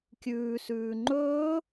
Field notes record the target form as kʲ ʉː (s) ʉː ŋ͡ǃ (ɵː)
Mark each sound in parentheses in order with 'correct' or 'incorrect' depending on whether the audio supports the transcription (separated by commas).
correct, correct